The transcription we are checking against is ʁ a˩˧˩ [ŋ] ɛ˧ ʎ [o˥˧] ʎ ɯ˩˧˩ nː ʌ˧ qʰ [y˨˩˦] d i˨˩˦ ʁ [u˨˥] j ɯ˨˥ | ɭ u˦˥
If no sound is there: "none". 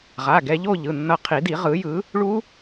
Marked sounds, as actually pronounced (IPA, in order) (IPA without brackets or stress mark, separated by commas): ɡ, o˥˧, i˨˩˦, ɯ˨˥